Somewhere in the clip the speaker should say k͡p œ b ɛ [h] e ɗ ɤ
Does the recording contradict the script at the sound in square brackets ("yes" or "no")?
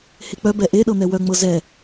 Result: yes